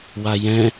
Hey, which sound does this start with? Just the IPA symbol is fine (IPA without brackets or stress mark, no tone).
w